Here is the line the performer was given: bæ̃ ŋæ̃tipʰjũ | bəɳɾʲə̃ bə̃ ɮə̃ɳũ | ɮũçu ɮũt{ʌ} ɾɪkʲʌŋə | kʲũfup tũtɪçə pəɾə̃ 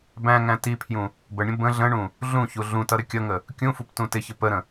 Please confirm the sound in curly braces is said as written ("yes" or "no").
yes